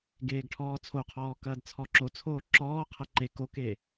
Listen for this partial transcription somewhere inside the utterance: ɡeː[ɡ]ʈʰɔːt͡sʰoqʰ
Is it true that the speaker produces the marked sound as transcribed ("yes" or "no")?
yes